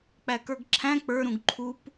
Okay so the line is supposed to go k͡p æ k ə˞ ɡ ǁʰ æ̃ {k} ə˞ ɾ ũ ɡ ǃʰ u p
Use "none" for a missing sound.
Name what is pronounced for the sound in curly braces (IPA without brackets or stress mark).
k͡p